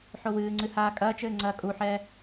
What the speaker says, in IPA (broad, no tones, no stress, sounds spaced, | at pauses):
ħ o w ɨː ŋ͡ǀ ɨ h aː kʼ ɐː t͡ʃ ɘː ŋ͡ǀ ɐː kʼ u ħ ɛː